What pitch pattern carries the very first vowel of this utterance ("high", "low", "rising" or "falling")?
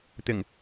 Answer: low